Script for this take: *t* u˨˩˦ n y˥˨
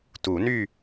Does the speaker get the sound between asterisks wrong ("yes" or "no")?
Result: no